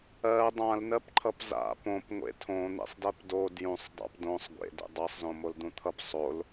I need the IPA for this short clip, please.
ɜ dˤãlnɜpǃʰʌp za̰ põp ŋʷḛtʰõ n̪ḛsˤdɜpdo djũsˤdˤa̰p dõsˤ ɡʷḛdḛ dˤɜsˤzõ mold̪ũt̪ʰʌp sˤol

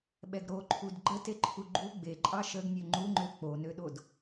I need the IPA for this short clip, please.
ɓɛɡɾoǃʰud ɡ͡ǃəteǃʰu ɡ͡ǃu ɡ͡beǃʼɑ ʃəɡ nʲøŋ͡ǃuŋ͡ǃø k͡ponøɗod

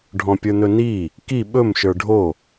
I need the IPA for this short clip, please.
ɖʱɔ̃pʲə˞nɵni | ki ɓɵm ʃə˞ɖʱo

